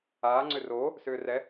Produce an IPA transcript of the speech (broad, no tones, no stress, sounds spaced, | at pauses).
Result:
aː ŋ͡ǀ ʏ r oː | s ʏː r ɛ